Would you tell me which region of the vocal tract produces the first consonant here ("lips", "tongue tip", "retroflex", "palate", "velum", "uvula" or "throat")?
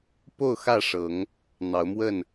lips